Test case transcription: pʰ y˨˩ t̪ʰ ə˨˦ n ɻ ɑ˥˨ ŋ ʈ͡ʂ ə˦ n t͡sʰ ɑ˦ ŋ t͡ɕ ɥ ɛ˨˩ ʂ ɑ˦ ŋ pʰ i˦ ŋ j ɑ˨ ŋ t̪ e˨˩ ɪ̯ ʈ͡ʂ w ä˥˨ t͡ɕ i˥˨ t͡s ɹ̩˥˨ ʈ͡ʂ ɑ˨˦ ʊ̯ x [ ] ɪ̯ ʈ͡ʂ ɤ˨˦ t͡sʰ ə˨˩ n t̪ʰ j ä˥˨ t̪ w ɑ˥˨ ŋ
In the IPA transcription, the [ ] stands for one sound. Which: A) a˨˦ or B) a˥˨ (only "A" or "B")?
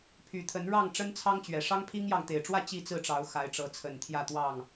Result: A